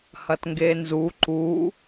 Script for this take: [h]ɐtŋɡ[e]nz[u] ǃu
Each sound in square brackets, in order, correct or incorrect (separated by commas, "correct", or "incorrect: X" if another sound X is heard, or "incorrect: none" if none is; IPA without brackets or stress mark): correct, correct, correct